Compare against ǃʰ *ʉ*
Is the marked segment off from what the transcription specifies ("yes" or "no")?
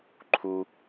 yes